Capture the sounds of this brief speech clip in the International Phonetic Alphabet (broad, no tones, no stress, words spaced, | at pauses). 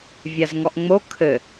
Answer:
vʲazŋɔʔŋ͡mo kʰɘ